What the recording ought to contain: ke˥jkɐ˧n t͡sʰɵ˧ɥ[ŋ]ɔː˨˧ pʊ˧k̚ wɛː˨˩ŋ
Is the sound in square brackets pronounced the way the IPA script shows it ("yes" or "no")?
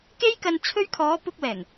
no